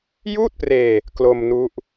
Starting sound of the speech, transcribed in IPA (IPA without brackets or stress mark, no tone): j